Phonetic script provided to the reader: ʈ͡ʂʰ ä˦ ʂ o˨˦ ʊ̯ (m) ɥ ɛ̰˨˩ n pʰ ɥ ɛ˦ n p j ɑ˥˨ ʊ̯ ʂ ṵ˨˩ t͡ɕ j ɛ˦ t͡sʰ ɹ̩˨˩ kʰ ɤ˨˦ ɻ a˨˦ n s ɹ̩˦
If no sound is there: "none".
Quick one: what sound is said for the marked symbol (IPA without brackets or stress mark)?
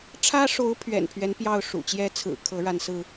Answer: pʰ